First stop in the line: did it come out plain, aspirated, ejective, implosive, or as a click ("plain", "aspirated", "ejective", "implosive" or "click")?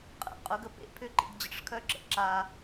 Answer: ejective